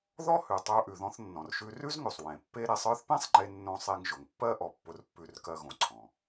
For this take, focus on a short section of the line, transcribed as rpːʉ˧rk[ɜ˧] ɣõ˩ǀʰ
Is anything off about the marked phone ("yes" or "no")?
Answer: no